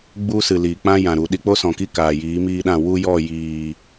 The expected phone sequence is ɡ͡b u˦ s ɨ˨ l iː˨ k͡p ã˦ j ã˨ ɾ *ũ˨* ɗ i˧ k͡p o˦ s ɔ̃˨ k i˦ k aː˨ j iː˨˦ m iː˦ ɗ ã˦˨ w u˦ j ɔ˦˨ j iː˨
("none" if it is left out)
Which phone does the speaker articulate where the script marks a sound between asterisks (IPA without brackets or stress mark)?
u˨